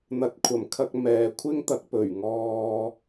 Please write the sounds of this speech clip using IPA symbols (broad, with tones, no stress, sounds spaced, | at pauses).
n̪ ɐ˨˥ t̚ kʷʰ ɐ˨˩ m kʰ ɐ˧ k̚ m ɛː˨ kʷʰ ɪ˥ ŋ t̪ ɐ˨˥ k̚ p ɵ˨˩ ɥ ŋ ɔː˧